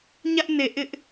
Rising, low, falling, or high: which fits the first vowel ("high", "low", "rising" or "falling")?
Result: high